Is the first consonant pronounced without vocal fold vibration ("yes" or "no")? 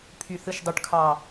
yes